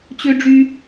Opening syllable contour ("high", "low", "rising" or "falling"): high